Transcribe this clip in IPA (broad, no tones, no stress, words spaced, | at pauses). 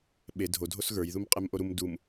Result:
ɓe dʱo dʱosɣə˞j ðumqʼemʔoɾum dum